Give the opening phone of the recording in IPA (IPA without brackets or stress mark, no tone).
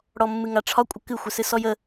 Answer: ɽ